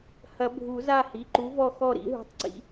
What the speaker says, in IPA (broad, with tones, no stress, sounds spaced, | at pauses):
h ɐ˨˩˦ bʱ u˨˩˦ z a˦˨ h i˩˧˩ ǃ u˨˥ v ɔ˦˨ x ɔ˦˨ ɾ ḭ˨˥ ɦ ṳ˧˥˧ tˤ ǀ ḭ˧˥˧